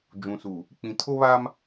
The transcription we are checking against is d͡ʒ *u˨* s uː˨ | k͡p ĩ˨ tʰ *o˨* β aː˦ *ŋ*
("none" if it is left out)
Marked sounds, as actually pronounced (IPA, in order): ũ˨, o˦, m

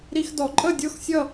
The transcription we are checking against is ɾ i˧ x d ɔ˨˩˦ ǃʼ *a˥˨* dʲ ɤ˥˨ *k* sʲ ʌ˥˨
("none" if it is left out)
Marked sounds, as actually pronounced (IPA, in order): ə˥˨, x

